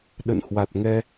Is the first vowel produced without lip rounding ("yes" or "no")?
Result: yes